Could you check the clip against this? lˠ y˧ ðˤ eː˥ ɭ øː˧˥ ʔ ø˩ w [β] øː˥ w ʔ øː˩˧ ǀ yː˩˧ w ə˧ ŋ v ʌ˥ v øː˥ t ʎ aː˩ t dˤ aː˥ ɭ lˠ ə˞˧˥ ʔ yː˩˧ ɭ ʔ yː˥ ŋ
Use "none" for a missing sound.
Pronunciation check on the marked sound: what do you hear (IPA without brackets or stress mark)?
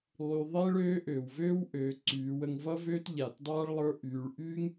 v